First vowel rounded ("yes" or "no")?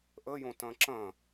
no